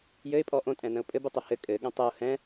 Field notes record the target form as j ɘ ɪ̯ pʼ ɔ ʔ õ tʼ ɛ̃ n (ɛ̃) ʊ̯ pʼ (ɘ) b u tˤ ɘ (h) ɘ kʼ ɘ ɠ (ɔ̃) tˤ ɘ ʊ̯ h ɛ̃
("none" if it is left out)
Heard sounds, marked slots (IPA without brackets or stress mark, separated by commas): ə̃, ɘ, h, ə̃